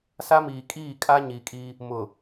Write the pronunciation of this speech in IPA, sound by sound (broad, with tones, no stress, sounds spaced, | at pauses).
s a˦ m iː˨ kʼ iː˦˨ kʼ a˦ ɲ i˨ kʼ i˦ | m ʊ˨